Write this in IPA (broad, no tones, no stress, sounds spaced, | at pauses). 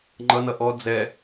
ŋ͡ǃ ʌ n ʌ ʔ ɔ d͡z ɛ